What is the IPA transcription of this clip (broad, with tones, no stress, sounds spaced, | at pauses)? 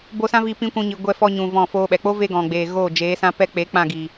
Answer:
b o˧ s ã˦ v i˧ p ĩ˦ kʷ ũ˧ ɲ i˨ ɡʷ ɛ˧ f ɔ˧ ɲ ũ˨ v ɔ̃˦˨ f oː˦ ɓ ɛ˨ k͡p o˦ v e˧ ɡ ɔ̃˨ ɡ͡b eː˨ ɣ oː˦˨ d͡ʒ eː˨˦ s ã˦ p ɛ˦ k͡p e˨˦ k͡p ã˦˨ ɡ i˨